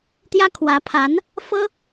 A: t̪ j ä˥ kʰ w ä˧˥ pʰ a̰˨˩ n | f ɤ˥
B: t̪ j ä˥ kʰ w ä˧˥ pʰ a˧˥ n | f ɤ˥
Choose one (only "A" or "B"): B